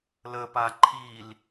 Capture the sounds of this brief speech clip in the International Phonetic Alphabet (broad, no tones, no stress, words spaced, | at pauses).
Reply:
ləpa ǃʰil